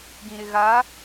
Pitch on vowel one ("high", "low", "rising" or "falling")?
low